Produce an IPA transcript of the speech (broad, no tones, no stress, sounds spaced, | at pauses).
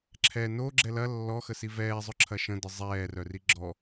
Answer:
ǁʰ ɛ n o ɡ͡ǁ ɛ l ɐ lː ɔ x ə s i v ɛː zˤ ʊ ǁʰ ɐ ʃ ə̃ d ə zˤ ɛː r œ r i ɡ͡ǁ ɔ